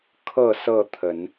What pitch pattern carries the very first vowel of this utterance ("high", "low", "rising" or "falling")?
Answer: falling